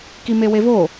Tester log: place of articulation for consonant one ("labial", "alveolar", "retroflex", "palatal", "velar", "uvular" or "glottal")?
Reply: velar